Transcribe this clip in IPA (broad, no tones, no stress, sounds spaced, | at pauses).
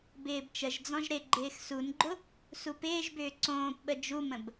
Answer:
b ɪː b t͡ʃ ə ʒ d͡z ɔ̃ ʒ ɾ ɪ ɡ͡ǃ ɪː x s u n ɡ͡ǃ ʊ | s u p ɪː ʒ b ʏː ǀ õː p ɓ ə d͡ʒ u m ə̃ b